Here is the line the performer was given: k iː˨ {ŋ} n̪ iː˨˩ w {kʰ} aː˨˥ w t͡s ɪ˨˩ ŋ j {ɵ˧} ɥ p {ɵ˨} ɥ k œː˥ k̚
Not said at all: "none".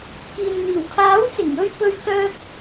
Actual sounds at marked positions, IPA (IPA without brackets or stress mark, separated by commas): n, kʰ, ɵ˧, ɵ˥